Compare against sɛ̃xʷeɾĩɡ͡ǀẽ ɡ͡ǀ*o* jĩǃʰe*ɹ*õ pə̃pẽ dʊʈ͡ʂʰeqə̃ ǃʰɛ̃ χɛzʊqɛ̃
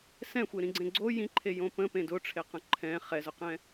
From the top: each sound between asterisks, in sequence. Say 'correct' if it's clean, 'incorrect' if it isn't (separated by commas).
correct, incorrect